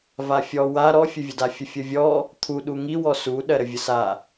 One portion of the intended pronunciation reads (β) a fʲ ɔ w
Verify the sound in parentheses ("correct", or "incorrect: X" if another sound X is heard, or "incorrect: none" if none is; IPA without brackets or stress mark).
incorrect: v